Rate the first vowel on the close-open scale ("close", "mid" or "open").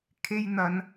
mid